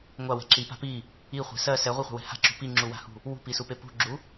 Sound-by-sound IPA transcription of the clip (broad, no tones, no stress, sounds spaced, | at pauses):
ŋʷ a w ɛ̤ ǁ i p a̤ p i | i χʷ ɛ̤ s ɜ s ɛ ʁʷ i χʷ ɛ̤ w ɛ̤ h a̤ ǁ ṳ p i ŋ͡ǁ u w a̤ h ṳ | w ṳ p i s u p e p ṳ ɡ͡ǁ u